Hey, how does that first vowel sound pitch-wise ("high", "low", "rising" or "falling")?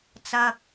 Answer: low